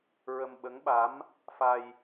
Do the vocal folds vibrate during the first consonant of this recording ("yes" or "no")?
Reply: yes